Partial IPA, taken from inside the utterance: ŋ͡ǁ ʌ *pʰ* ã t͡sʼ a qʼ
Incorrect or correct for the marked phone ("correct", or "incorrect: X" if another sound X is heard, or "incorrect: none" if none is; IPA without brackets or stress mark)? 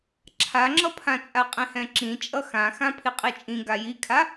correct